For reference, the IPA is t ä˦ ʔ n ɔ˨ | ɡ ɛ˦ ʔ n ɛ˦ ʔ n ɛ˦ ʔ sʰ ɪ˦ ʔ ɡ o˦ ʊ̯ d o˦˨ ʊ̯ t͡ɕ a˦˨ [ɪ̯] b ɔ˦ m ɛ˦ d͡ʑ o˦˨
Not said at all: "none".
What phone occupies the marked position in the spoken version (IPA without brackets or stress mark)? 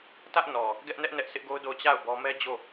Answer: ʊ̯